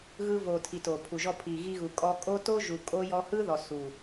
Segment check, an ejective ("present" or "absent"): present